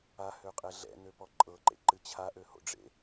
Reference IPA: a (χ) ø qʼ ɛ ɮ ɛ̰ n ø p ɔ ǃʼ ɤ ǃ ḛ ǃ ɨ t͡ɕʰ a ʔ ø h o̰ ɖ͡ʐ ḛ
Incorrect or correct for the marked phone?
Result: incorrect: h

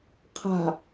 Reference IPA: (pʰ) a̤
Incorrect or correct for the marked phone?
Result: incorrect: qʰ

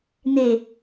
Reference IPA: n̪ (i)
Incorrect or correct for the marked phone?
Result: incorrect: e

